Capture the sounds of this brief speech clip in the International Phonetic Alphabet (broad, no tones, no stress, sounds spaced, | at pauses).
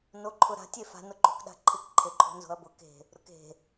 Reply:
n o ǃʰ ʊ ɾ a̤ tʲ e f a̤ n ʊ ǃ o̤ k ɗ a̤ ǃʰ ɪ k ǃʰ e ǃʰ o̤ n z o̤ ɐ̯ b ʊ k e̤ | ɾ ʊ k e̤